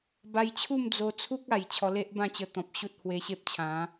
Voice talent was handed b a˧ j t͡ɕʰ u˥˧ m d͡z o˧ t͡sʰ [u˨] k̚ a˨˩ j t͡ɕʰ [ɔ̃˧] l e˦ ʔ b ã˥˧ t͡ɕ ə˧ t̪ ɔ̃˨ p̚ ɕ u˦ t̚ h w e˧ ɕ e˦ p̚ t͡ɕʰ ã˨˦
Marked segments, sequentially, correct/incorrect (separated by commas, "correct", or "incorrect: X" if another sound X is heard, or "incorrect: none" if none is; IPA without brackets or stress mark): incorrect: u˦, incorrect: ɔ˧